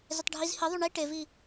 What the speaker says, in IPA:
z ɪ tˤ ɖʱ i z h i ðˤ u ɳ i ʈ e v i

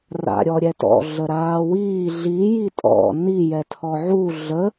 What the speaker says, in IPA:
r a̰ ɾʲ ɔ ɾʲ ɛ t ɔ̰ ɮ ə ɾ aː w iː ɮ i j i tʼ ɔ̰ n i j ɛ tʰ ɔ ʕ u ɮ ə

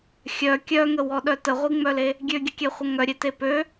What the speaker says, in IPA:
xʲ œ kʲ œ ŋ ə w ɔ ɗ œ t ə ʁʷ i ŋ͡m œ l e | ɡʲ ø ɡʲ ə kʲ ɛ χʷ ə ŋ œ ɾʲ e t e p ø

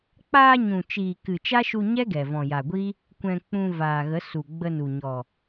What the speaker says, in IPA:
k͡p aː˧ ɲ ũ˨ t͡ʃ iː˨ k ɨ˨ t͡ʃ a˦ ʃ u˧ ɲ ɛ˦ ɡ ɛ˨ v ɔ̃˨ j a˨ ɡʷ iː˦ | kʷ ɛ̃˧ k͡p ũ˧ v aː˨ ɣ ə˨˦ s u˨ ɡ͡b ə˧ n u˨ ɲ ɔ˨

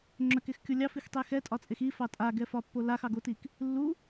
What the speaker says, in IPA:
ŋ͡ǁ œ k e x kʲ o lʲ ɑ f i x tˤ e x ɛ tʼ ɒ t͡sʼ e x i f ɑ tʼ a ɡ ɛ f ɒ pː o l a x ɑ ɡ o t i k | lː u

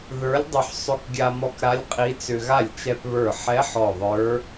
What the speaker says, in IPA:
ð ə˞˧˥ lʲ dˤ ʏ˧ ħ sˤ ʏ˧ k ɡʲ a˧ m ɔ˧ k ɾ a˧˥ lʲ qʼ i˧˥ t͡s ʏ˧ ɣ a˥˩ lʲ t͡ʃ ɛ˧ p β ə˞˧˩ ħ ɛ˧˥ ħ ɔ˧˩ ðˤ ə˞˧˥

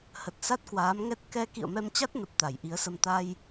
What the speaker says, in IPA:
h ə˨˩ t̚ s a˦˥ t̚ k w aː˨˦ m ŋ ɛ˦˥ t̚ k ɛ˧ k ḭ˧˨ ə̯ m ɛ˧ m t͡ɕ a˦˥ t̚ n ə˨˩ p̚ t̪ a˧˩ j ʔ i˨˦ ə̯ s ə˧ m t̪ a˧ j

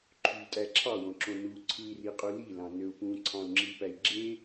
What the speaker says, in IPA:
ǃʰ y tʼ æ ǁʰ ɑ w õ ǁ õ n u ǀʰ ɯ i̯ r i qʼ u l i l ɑ̃ n ø u̯ p ũ ǀʰ ɑ̃ u̯ ŋ͡ǁ i p æ i̯ ɡ͡ǁ e

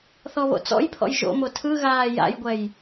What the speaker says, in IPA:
θ ɔ β o̰ t͡s ɔ̰ j pʰ ɔ̰ j ʒ o̰ m o tʰ ɯ ɣ aː j a̰ j ɡʷ ɛ j

